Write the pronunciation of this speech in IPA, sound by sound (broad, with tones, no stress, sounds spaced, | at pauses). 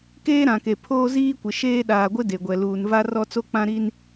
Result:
k eː˦ ɾ ã˨ k e˨ pʰ oː˦ z iː˦ kʷ ɪ˨ ʃ eː˦ ɗ aː˨ ɡʷ ɪ˦ d e˨ ɡʷ ɛ˨ l uː˨ n v a˦ r ɔ˦ t͡s o˦ k͡p ã˦ ɾ i˦ n